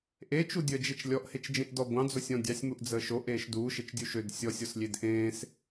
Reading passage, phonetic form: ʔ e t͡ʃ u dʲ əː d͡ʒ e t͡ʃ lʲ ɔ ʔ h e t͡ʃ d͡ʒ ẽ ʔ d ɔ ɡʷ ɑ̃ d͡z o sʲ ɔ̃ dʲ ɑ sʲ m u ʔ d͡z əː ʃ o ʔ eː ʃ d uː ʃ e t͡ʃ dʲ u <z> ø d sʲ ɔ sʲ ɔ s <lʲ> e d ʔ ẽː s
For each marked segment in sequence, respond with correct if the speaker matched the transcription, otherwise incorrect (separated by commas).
incorrect, correct